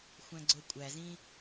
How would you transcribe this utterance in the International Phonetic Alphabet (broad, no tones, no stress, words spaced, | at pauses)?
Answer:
xʷæ̃ɡ͡ǀokʷʼæzĩ